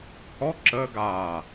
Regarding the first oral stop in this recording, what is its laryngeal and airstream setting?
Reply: click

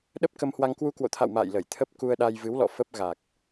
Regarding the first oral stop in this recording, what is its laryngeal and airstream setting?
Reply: implosive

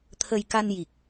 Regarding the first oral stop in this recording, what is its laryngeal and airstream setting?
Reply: aspirated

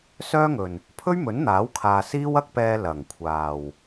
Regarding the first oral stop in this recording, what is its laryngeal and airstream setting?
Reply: aspirated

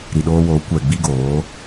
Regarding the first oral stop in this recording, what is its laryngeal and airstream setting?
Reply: implosive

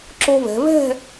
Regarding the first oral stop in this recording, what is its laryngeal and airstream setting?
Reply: click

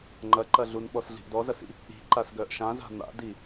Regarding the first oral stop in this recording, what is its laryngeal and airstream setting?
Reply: click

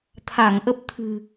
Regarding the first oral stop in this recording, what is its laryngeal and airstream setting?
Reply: aspirated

